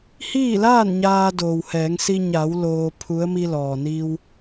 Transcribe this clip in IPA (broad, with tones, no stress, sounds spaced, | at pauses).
h iː˥˨ l aː˥˨ n ɲ aː˧ d oː˩ w h ɛː˩˧ ŋ s i˧ ɲ a˩˧ w l oː˧ pʰ u˧˥ ə̯ m i˧ l ɔː˩ n i˧ w